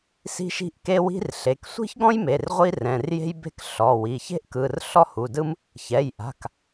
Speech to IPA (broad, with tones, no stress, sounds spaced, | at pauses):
s i̤˥ ʃ i̤˥ ʔ k e˥ w i̤˥ r ɬ e˩˧˩ k sʷ i̤˥ ç ɡ ɔ̃˥ j m e˩˧˩ r ʁʷ i˥ r ɛ̃˩˧˩ r j e̤˥ j b e̤˥ k ɬ ɔ˩˧˩ w i˩˧˩ ç e̤˥ ʔ k ɯ˩˧˩ r ɬ ɔ˥ h u˩˧˩ d ɯ˥ m | ç ɛ˩˧˩ j ʔ a̤˩˧˩ k